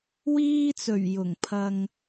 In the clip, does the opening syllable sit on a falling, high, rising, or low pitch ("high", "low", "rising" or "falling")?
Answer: high